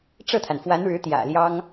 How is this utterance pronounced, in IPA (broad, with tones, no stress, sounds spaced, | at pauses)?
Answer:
ʈ͡ʂ ɤ˥˩ t̪ʰ a˩ n f w a˧˥ n ɻ ɻ̩˧˥ t̪ j ä̰˨˩ l j ɑ˥ ŋ